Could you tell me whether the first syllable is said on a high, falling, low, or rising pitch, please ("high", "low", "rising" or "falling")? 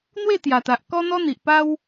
falling